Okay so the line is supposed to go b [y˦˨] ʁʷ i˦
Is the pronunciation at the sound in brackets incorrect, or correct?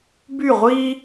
correct